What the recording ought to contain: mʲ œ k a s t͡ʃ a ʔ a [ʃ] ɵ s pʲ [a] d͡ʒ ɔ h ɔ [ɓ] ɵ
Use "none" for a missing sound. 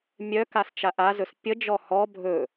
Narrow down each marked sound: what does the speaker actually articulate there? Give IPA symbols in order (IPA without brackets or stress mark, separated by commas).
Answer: z, ə, bʱ